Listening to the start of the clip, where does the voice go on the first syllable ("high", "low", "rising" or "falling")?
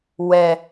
low